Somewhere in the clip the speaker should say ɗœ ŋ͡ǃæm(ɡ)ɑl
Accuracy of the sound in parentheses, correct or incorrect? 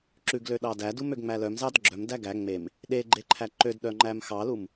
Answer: incorrect